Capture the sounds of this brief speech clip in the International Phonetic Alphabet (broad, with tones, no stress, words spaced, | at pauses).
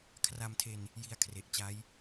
kʰra˧mtʰe˧n | ji˧a̯ kʰre˨˩ʔt͡ɕa˦˥j